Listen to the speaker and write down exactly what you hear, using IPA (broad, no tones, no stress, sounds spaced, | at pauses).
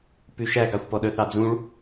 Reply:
p ʉ ʃ æ ɡ ɑ xʷ p ɔ ɗ œ θ ɑ d͡z ũ ɭ